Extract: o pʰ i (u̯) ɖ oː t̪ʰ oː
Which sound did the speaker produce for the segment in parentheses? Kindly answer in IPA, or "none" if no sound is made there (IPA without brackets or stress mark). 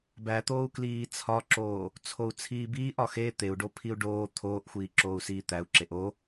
u̯